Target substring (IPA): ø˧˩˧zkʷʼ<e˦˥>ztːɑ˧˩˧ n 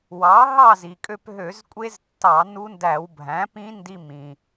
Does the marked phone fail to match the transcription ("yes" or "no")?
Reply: no